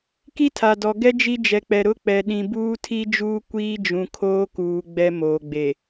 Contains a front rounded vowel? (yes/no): no